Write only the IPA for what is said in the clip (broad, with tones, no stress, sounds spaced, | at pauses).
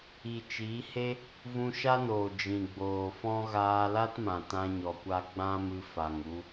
i˨ t͡ʃ iː˨˦ h e˦ | v ũ˧ ʃ a˦ n oː˨ d͡ʒ ĩ˨ ɡ͡b oː˨ f ɔ̃˦ ɣ aː˧ l a˦ t m ã˨ t ã˧ ɲ ɔ˨ kʷ a˧ ɡ͡b ã˦ m ɨ˧ f a˨ ŋ u˧